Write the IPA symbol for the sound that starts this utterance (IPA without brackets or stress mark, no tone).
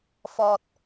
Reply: f